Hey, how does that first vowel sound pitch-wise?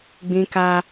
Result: high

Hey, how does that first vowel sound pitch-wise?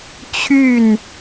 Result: falling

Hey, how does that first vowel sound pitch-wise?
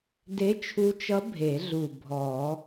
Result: rising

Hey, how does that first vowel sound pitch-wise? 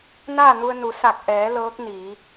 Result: falling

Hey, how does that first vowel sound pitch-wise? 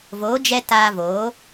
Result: rising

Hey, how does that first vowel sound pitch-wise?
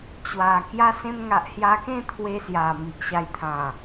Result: low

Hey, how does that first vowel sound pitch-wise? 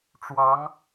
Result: rising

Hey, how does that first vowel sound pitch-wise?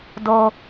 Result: low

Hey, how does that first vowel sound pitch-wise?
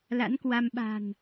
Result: rising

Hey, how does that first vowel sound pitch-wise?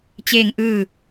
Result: falling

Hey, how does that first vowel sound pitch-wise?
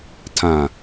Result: low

